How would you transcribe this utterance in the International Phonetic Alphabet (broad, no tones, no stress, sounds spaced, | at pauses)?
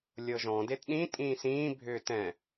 lʲ ɤ ʒ ɔ̃ d e t ɗ ĩ tʼ ĩː s ĩː bʱ ʏː t ɛ̃